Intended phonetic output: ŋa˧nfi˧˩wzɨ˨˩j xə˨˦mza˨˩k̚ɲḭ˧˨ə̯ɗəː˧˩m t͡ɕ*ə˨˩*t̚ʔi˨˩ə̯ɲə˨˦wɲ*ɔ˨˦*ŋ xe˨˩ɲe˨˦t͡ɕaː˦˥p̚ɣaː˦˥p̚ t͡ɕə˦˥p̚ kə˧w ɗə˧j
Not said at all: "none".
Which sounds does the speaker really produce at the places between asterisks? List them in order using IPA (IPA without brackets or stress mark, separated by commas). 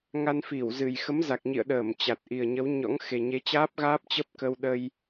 a˨˩, ɔ̰˧˥